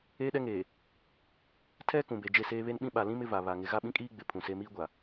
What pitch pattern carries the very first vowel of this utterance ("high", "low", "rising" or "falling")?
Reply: high